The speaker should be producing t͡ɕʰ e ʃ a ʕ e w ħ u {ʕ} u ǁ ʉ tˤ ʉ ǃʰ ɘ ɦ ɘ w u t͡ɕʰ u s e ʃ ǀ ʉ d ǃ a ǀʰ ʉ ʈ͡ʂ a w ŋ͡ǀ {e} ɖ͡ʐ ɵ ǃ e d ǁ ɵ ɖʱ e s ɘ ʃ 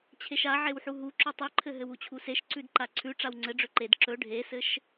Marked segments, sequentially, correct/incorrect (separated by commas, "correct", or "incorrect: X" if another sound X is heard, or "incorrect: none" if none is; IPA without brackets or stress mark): incorrect: ɦ, incorrect: ɘ